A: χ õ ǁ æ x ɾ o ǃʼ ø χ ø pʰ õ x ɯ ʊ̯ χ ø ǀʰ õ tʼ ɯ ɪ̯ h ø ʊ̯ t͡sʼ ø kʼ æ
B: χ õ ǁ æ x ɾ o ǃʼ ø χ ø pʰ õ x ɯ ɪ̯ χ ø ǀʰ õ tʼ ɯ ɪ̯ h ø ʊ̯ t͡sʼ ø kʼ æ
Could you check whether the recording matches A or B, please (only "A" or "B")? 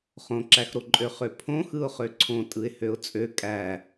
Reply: A